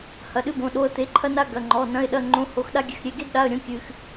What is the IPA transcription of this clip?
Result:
h ɐ˧˥˧ ɗ ɨ˥ b õ˧˥˧ ɗ o˧˥˧ ə̯ t̪ e˧˥˧ ǃʰ ɐ˥ n a˥ ɡ ɐ˧˥˧ ŋ͡ǃ ɔ˧˥˧ n ɐ̃˧˥˧ ɪ̯ ɗ ɐ˧˥˧ ŋ͡ǃ õ˧˥˧ h o˧˥˧ x ɗ a˥ ɡʲ ɘ˧˥˧ x ɾʲ e˧˥˧ ɡ e˥ d ɗ a˧˥˧ ə̯ ɾʲ õ˥ kʲ ɨ˥ x

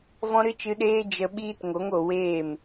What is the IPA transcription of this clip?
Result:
v ɔ̃˦ ɾ ɨ˦ t͡ʃ ɨ˧ ɗ eː˦ d͡ʒ ə˧ ɓ iː˦ t ŋ o˨˦ ŋ o˨ w eː˦˨ m

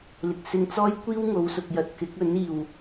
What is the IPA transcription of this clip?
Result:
l ɪ˨ k̚ s ɪ˧ ŋ t͡s ɔː˥ j kʷ iː˥ w ŋ o˨˧ w s ʊ˨ k̚ j ɐ˨ t̚ k ɪ˨˥ k̚ ɵ˨˥ n iː˨˩ w

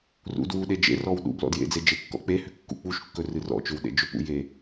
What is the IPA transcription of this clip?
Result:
r ṵ d w u ɗ e d͡ʒ ḛ r ɔ w ɗ ṵ b l ɔ̰ d j ḛ d͡z e d͡ʒ e kː ɔ̰ k͡p e h ʏ kː ṵ k͡p u ʃ kː ɵ r ɨ r ɔ̰ t͡ʃ ʏ w ɗ ḛ d͡ʒ ɵ p ṵ j e

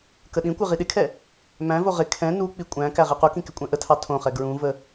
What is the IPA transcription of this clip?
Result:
k ə ɗ ĩ kʷ ɪ ʁ i ɗ ɪ kʰ ɛ | m æ̃ v o ʁ ɪ kʰ ɛ̃ n u k͡p i kʷʼ æ̃ k æ ʁ i q u k ĩ k ɪ kʷʼ ɛ̃ ʔ ə tʰ ɑ tʰ õ χ ɛ ɡ ɹ ũ v ə

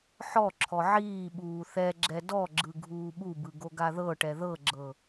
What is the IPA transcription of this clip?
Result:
ħ ɔ ǁʰ ɔ ʕ iː ɓ uː θ ɛ ɡ͡ǁ ɛ d ɔ ɡ͡ǁ ɯ ɡʱ uː ɓ u b ɯ ɡ o ɡ a ð ɤ ʈ ɛ ð ɤ ɡ͡ǁ ɤ

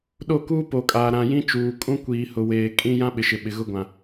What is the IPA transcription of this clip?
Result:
ɗ o˦˨ k uː˦ p o˨ kʼ aː˨ ɾ ã˨ j ĩ˦ t͡ʃ uː˨ kʼ ũ˦ kʷ iː˨ h ʊ˨ w eː˨ kʼ ĩ˦ j ã˦ ɓ ɪ˨ ʃ ɪ˨ ɓ ɪ˨ ɣ ʊ˦ ɡʷ ã˨

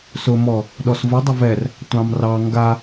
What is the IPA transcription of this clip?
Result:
s ʊ m ɔ | ɗ ɔ s v ʊ dˤ ʊ v ɛ r | tʷ ɑ̃ m r ɑ ŋ ɡ a

